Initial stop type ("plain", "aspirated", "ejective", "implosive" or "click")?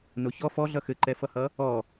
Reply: click